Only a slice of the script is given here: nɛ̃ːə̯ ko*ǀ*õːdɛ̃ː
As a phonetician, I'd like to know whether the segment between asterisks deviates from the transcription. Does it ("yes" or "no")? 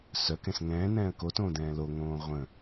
yes